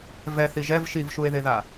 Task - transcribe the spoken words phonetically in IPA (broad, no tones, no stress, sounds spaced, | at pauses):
v ɛ θ i ʒ ɛ v ʃ i v ʃ u e̯ ð e ð a